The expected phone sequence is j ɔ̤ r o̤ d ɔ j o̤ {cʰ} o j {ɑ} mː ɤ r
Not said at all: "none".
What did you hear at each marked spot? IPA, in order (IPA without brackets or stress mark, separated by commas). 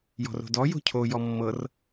cʰ, ɔ